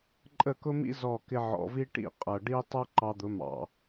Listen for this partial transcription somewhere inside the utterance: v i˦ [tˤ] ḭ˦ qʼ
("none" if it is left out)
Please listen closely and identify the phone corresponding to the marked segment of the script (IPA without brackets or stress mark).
ʈ